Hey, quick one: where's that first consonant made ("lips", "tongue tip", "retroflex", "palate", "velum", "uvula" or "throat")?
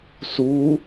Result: tongue tip